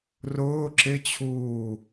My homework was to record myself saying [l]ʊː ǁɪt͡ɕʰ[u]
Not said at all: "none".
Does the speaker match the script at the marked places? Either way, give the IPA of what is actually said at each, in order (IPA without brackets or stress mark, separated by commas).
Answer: r, uː